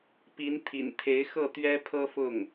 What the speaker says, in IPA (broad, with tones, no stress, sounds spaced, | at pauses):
p i˧˥ n t̪ʰ ḭ˨˩ n t̪ʰ e˧˥ ɪ̯ x ɤ˥˩ t̪ ɥ ɛ˥ pʰ ɤ˥ f ʊ˥˩ ŋ